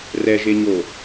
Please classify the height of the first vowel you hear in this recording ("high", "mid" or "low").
mid